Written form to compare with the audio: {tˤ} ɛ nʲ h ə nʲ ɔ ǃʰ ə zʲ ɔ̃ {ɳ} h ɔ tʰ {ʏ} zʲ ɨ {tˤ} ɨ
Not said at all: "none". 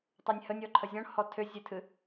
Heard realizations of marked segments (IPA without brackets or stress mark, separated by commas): tˤ, ɳ, ʏ, tʰ